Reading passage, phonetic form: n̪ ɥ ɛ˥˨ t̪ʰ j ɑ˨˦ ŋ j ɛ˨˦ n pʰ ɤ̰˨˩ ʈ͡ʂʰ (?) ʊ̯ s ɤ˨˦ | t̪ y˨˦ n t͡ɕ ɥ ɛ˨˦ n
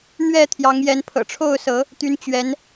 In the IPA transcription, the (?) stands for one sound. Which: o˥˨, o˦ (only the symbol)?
o˥˨